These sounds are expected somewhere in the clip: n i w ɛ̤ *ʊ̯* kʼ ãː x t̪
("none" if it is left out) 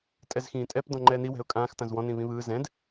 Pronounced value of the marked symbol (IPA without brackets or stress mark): ʊ̯